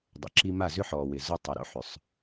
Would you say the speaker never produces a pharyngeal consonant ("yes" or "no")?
no